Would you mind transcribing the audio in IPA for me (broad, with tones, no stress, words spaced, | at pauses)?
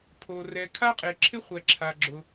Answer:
pʰo˩ rɛ˩kʰa˥qʼe˩ǁʰɪ˥ χʷɛ˩ǁʰa˩ɡ͡ǁʊ˩